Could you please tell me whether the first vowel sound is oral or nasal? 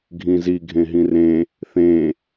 nasal